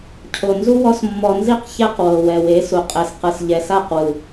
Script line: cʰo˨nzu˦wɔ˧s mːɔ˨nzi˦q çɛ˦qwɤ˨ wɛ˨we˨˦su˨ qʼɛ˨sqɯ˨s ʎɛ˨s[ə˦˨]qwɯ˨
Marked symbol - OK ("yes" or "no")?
no